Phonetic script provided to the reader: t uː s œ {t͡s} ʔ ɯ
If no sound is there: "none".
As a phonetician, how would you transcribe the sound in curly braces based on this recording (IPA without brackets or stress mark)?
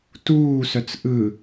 t͡s